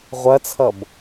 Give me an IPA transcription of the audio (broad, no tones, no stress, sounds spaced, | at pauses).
ʁʷ ɐ t͡sʰ ʌ b